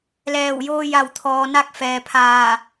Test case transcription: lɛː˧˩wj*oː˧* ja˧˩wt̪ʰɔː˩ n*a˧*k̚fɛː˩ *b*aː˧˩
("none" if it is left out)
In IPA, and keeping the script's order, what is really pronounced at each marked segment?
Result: oː˧, a˧, pʰ

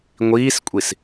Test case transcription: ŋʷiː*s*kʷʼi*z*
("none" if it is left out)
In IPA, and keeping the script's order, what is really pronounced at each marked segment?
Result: s, s

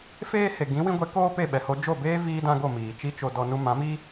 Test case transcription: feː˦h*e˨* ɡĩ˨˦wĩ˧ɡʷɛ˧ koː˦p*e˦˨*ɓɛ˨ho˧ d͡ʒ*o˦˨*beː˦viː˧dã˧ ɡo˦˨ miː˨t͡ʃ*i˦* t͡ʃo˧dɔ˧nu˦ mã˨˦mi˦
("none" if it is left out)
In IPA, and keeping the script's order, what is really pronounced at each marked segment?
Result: e˨, e˦˨, o˦˨, i˦

